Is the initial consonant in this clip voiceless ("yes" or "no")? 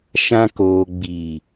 yes